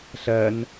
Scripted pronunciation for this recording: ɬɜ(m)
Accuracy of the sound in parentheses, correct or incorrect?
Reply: incorrect